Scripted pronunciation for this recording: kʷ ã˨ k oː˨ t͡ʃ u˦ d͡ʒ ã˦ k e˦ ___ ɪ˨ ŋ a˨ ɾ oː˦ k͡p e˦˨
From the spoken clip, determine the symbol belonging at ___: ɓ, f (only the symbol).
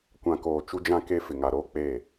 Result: f